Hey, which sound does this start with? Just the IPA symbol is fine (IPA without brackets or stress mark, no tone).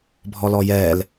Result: bʱ